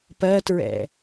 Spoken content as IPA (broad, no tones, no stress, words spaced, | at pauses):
pɜtɹɛ̰